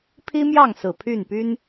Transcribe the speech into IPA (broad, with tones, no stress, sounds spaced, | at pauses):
pʰ i˥ m j ɑ˥˩ ŋ s ɹ̩˨˩ pʰ y˥˩ n p y˥ n